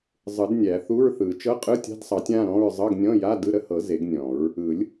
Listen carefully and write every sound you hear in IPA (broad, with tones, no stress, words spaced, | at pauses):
zˤɯ˨˩˦dnʲæ˨˩˦θu˧˥˧ɹθɯ˨˩˦ t͡ʃɤ˧˥˧qʼɯ˧˥˧tʲa̤˧˥˧dsˤɑ˨˩˦tʲ ã˧˥˧ɾɔ̃˧˥˧ɹ zˤɤ˧˥˧ɡnʲɔ̃˧˥˧ja˧˥˧ dɯ˧˥˧ɾə˧˥˧hɤ˨˩˦ ze˨˩˦ɡnʲɔ̃˨˩˦ɹ | ɯ˨˩˦lʲ